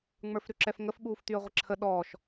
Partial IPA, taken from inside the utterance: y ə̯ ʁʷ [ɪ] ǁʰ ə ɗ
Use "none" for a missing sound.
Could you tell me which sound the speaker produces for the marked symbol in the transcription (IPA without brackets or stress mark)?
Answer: ɪ